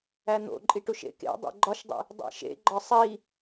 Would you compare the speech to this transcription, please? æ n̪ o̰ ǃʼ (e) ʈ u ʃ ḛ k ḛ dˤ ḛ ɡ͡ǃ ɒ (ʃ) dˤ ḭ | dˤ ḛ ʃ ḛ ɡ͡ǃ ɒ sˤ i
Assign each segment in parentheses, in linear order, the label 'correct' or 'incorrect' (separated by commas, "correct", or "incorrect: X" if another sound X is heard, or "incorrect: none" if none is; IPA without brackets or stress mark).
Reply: incorrect: i, correct